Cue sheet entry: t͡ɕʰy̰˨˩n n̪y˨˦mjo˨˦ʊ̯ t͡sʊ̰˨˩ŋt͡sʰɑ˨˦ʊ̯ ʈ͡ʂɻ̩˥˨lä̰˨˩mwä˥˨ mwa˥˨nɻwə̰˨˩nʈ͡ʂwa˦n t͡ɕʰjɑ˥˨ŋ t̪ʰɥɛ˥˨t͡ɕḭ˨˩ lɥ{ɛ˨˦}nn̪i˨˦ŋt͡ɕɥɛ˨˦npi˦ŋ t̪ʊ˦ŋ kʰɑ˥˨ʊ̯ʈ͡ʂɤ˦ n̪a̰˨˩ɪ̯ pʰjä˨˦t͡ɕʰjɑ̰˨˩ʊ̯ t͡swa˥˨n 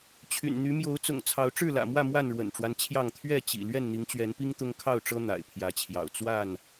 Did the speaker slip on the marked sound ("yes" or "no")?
yes